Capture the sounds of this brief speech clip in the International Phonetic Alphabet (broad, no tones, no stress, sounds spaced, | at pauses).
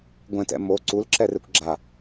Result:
ɡʷ ɛ̃ t ɛ̰ m o ǀ u l ǁ ɛ r e kʷ ɡ͡ǁ a